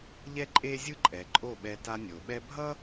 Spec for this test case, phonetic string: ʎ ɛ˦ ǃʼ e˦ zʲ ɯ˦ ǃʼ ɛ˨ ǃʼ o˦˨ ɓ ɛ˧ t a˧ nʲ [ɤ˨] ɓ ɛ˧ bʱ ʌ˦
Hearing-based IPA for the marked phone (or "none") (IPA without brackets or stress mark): o˨